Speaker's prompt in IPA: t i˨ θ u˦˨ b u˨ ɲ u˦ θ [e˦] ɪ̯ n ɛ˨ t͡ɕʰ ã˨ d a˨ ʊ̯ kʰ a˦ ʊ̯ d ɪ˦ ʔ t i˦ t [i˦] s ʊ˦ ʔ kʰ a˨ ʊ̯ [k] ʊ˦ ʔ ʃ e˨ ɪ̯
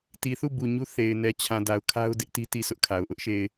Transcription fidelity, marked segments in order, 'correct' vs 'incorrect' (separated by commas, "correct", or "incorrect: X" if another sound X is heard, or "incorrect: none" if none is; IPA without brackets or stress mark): incorrect: e˨, incorrect: i˦˨, incorrect: ʔ